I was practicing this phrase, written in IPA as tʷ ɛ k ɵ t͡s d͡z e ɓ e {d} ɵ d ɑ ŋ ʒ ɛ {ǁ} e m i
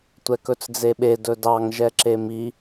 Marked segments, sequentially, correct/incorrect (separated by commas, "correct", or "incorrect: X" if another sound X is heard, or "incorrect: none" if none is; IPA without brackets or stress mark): correct, correct